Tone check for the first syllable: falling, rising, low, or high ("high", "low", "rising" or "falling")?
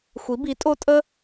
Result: rising